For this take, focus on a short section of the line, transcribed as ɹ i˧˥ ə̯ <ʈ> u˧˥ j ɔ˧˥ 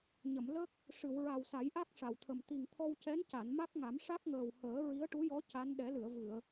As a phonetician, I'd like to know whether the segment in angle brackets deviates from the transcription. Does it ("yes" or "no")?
no